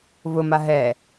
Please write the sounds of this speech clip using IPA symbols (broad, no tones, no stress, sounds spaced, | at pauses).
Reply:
v ʊ m a ɦ ɛ